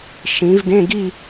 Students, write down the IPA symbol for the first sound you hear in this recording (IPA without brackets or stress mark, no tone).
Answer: ʃ